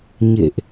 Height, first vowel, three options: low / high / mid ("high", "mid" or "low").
mid